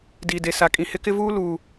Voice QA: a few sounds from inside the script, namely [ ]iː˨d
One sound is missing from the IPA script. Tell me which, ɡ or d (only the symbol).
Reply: d